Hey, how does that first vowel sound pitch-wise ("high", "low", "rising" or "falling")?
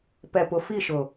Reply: low